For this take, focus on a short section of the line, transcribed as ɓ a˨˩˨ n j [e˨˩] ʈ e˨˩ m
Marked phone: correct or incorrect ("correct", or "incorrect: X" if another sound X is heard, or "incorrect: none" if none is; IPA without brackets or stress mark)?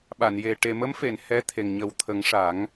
correct